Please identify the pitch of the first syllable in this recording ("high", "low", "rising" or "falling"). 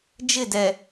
falling